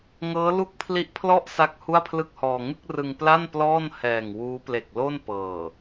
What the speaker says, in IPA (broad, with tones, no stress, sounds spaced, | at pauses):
ŋ ɤː˦˥ l u˥˩ k̚ pʰ l i˦˥ ʔ pʰ l ɔ˥˩ ʔ s a˥˩ k̚ h u˥˩ a̯ pʰ l ɯ˥˩ k̚ h ɔː˧ ŋ ɯ˥˩ k̚ r ɯ˧ ŋ p l a˥˩ n p l ɔː˥˩ n h ɛː˨˩ ŋ w uː˦˥ p l e˨˩ k̚ l o˥˩ n p ɤː˨˩